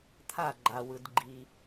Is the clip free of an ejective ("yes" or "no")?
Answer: yes